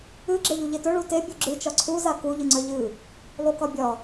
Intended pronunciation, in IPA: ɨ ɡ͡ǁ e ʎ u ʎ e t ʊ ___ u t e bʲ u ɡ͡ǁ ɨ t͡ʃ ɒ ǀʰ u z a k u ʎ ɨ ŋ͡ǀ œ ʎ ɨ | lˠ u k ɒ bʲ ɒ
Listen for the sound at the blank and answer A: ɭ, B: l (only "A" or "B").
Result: A